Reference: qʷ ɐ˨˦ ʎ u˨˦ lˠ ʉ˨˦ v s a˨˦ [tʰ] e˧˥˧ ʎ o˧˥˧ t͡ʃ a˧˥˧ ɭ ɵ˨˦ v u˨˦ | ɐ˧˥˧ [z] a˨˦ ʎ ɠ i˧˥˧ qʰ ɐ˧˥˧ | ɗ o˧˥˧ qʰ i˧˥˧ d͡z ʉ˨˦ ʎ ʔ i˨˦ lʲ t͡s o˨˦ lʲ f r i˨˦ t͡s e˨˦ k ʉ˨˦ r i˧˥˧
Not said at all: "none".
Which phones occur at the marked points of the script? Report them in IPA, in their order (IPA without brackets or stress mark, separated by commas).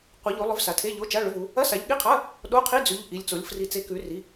tʰ, s